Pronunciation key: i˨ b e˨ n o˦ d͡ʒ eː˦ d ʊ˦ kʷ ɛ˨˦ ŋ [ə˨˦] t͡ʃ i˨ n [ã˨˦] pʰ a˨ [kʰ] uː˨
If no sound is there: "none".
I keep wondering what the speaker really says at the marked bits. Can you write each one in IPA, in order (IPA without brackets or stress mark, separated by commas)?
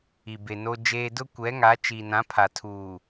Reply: a˨˦, ã˨˦, tʰ